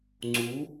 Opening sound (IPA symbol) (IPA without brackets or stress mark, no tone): ŋ͡ǀ